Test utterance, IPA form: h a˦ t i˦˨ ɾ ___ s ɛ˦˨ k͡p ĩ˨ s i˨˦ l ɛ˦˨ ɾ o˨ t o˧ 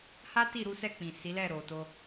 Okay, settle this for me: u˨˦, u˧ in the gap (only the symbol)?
u˨˦